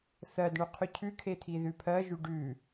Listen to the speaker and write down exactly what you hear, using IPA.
θɜdɳʉqʰʉ cʰʉkʰet̪ʰi ðʉpʰɜʒʉ ɖʉ

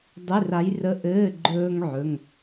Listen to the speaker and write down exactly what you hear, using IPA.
dˤi˧˥˧ra˧˥j rə˧˥˧ʔɘː˧˥˧ ɡ͡ǃɵː˥ŋʕɵ˧˥˧ŋ

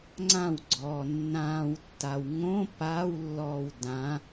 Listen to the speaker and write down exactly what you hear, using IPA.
ŋ͡ǀãwɡ͡ǀɔː nːãːwtːaw ŋõ paːwlːɔːw dã

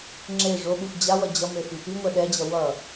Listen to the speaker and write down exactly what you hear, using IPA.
ŋ͡ǁe ʐoɓuf d͡ʑawʌ d͡ʑʌmefi piŋʷɛ ɗɛd͡ʑʌ wʌ

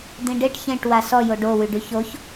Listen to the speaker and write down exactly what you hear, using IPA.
d̪ĩɖeʈ çẽʈ wasɔ joɖo wyɖyçoç

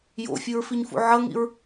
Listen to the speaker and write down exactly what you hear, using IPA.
jo̰fʲɯɹfiɲfṵ ʕʌŋḭɹ

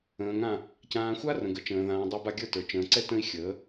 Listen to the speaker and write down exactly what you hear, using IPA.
ə̃ː˨ŋã˦˨ | cãː˨xʷa˦ rə̃˨ɡə˨t͡ʃə̃ː˨ðãː˨ dˤa˦ba˦ ɡʲə˞˦˨tə˞˨ t͡ʃə̃ː˨ǀɛ˦tə̃˦i̯xʲəː˨˦

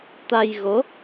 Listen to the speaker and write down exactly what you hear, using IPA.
t̪a˧jɣo˨˦

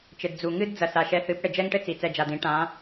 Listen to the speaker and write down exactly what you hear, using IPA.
t͡ʃɘ˨dd͡zu˨ ŋɨ˦d d͡zɐ˨sa˨ʃɛ˧θɨ˨˦p ɽɘ˨d͡ʒɛ˦ŋʈɘ˦ t͡si˨t͡sɛ˧d͡ʒa˨dĩ˨˦ ʈã˨˦

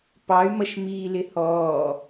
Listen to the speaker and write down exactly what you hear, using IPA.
pɑy̯mʌʃ miːlɪhɔː

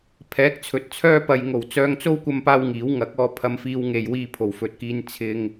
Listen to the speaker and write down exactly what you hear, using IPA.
pʰɛː˨˥k̚t͡sʰɵ˨˥t̚t͡sʰœː˥ pɐ˨jŋo˨˩wt͡sœː˧ŋt͡so˥w kʷɐ˥mpaː˥wŋiː˨˥w ŋɐ˨˥k̚ɔː˧ pʰɐ˧mfiː˧w ŋe˨j wiː˧pʰo˨˩wfɵ˨t̚kiː˧n t͡sʰɪ˧ŋ

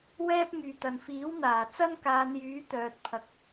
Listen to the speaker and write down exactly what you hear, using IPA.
wɛː˥p̚ŋyː˨t̪ɐ˨n fiː˨˥wn̪aː˨˩ t͡sɐ˥nkaː˨˧njyː˨˥ t̪œː˨t̚pʰɐ˨k̚

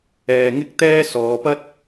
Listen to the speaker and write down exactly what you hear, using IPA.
ɛː˧ŋɪ˥k̚t̪ɛː˥ sɔː˨˧pɐ˥t̚

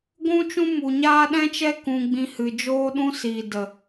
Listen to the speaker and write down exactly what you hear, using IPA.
ɡʷũ˦t͡ʃũ˦mu˨ɲaː˦ ɗɛ̃˦t͡ʃɛ˦ kũ˧ɡ͡bĩ˧hɨ˨ d͡ʒoː˦ɗũ˦ siː˨də˨

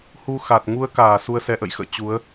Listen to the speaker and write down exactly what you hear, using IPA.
hu˧xa˨˩t̚ ŋu˧ə̯kaː˧˩ su˧ə̯sɛ˧ʔə̰˧˨j xə̰ː˧˨ t͡ɕu˨˦ə̯

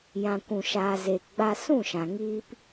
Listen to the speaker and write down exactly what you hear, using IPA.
jã˨kʷũ˨ʃaː˨ zeː˨kɡ͡ba˧sũ˦˨ʃã˨ ŋiː˧p

